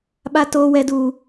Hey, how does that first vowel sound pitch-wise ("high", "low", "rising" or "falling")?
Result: high